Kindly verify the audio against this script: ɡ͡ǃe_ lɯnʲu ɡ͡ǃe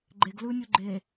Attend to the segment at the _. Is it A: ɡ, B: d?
A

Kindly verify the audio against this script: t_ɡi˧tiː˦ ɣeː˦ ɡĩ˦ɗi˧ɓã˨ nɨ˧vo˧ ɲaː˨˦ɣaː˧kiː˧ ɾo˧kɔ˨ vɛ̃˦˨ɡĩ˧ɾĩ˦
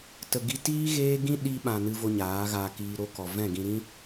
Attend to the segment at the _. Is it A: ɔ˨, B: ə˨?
B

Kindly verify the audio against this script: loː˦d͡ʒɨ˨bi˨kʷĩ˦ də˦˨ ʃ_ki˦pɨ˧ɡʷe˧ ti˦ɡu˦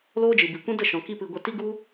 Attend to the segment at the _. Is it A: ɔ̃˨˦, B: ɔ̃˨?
B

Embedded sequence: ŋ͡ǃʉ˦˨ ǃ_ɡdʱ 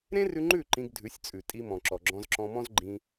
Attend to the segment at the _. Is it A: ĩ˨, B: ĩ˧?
B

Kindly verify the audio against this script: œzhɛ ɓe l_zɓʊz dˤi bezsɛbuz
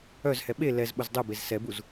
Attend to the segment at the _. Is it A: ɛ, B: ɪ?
A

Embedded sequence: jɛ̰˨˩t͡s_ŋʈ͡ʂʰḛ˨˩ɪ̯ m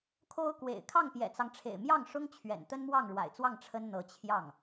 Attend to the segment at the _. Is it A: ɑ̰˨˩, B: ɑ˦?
B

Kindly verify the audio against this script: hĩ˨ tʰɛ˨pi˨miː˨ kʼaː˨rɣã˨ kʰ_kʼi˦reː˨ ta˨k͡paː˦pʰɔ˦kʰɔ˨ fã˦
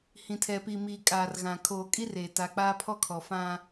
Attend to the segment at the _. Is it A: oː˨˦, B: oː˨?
B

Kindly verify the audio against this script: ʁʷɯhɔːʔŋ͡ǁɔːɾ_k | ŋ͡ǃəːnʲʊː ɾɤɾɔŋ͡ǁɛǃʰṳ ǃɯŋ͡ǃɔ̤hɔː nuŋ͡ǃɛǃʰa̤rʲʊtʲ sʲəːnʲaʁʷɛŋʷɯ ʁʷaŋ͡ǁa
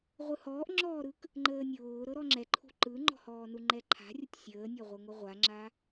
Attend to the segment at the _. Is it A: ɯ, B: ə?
A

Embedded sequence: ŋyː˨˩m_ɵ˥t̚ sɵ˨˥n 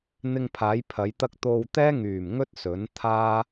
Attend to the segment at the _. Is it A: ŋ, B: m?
A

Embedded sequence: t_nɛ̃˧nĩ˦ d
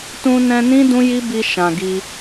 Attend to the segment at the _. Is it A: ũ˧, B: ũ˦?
A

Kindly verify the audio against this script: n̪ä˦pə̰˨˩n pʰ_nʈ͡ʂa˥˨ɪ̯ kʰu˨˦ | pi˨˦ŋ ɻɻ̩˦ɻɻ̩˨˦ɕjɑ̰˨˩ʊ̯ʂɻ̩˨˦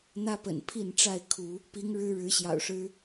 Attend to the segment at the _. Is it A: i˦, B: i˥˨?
B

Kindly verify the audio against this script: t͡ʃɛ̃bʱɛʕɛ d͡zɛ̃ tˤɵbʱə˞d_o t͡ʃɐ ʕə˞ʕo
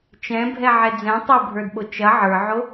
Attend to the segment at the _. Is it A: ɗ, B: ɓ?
B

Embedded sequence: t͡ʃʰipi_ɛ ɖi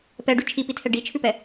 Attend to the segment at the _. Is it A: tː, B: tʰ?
B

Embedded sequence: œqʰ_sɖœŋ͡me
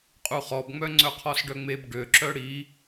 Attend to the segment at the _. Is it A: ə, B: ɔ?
B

